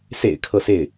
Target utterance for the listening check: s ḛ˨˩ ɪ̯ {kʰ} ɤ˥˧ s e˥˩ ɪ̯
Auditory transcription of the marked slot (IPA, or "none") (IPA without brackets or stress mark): kʰ